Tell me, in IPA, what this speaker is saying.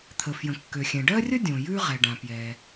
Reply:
t̪ʰə˩fjə̃˩kːø˩xʲɛ̃˩ ɖɜ˥rʲə˥ dʲõ˩jʉ˥ʁɛ˩ ɖã˩pjɛ˩

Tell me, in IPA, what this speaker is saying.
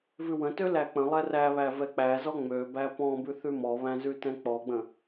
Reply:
vʉwə̃tø læk͡pə̃lˠɛ ræβæ vɛk͡pæzɔ ŋ͡møbæ pɔ̃bʉ θʉmɔβæ̃ zʉtɛ̃k͡pɔɡ͡bə̃

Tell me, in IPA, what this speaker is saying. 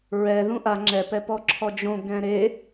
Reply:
ɹɛ ðũʔa ŋ͡ǁɛp ɛpɔǁʰɔd͡ʒõ ɡɛ̃ɾe

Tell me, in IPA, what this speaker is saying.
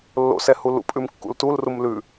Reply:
lːo̰sɛ hulṵpʼʉm kːṵltulrum lʉ

